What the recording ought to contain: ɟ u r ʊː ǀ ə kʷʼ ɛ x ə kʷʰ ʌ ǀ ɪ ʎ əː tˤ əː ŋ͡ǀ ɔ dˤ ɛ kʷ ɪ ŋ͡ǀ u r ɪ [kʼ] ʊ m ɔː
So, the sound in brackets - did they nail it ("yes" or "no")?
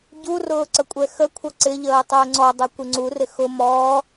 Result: no